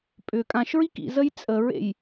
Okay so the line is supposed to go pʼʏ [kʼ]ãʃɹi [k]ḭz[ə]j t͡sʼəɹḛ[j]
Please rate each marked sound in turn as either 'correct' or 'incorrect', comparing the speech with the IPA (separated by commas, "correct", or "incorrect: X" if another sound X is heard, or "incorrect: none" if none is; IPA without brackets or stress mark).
correct, correct, correct, correct